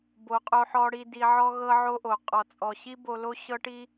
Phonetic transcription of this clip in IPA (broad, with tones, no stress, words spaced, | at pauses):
bo˨qʼo˧ħɔ˧ ɽi˧di˧ ʕɔ˦ɣɤ˦ʕo˦ʔo˨ qʼɔ˨t͡sʼɔ˨ɕi˦ bo˧lo˦ ɕɤ˦ʈi˦